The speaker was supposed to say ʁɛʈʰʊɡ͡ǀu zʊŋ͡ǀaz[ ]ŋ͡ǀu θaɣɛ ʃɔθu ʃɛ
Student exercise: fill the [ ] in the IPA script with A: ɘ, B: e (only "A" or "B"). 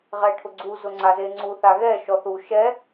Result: B